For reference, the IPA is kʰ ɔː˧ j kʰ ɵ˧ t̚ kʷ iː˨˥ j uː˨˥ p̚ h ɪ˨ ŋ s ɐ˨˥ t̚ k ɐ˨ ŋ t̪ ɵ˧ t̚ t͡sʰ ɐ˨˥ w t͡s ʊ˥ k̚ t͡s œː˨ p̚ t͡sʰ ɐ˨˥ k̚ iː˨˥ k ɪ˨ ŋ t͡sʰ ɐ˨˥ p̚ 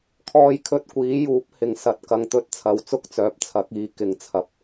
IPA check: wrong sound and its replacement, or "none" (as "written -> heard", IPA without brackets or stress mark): none